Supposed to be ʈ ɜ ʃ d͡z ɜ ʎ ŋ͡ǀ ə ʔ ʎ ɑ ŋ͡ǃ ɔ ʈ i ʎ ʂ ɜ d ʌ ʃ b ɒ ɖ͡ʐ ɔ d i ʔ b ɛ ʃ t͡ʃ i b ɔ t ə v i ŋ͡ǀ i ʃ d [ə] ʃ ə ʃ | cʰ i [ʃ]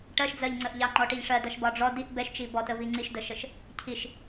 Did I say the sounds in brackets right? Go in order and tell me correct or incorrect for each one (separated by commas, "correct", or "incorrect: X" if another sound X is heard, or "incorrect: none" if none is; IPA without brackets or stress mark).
correct, correct